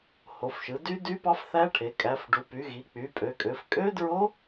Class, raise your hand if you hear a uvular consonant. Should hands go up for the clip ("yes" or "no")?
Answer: no